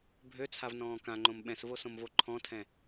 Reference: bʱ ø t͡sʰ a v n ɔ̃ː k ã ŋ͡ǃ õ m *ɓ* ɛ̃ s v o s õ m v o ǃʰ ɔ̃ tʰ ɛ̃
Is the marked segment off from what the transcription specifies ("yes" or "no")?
no